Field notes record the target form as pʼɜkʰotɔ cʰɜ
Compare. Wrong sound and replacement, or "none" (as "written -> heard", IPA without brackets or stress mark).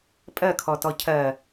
o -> ɔ